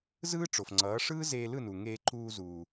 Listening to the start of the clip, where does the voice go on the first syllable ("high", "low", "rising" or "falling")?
high